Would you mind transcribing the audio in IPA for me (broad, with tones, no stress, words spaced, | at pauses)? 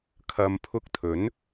kʰɐ˨mpʰʊ˧k̚t̪ʰɵ˨˥n